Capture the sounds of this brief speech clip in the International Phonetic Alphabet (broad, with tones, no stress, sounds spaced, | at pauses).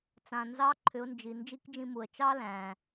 t͡s ã˩ n z ɑ˧˥ ǃʰ ʏ˩˧ ʊ̯ n d͡ʒ i˩ n d͡ʒ i˧˥ k d͡ʒ ĩ˧ m u˩ ə̯ t͡ʃ ɑ˥ l æ̃˩